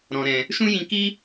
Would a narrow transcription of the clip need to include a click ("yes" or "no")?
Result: no